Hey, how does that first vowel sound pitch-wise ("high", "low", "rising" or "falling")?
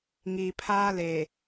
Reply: low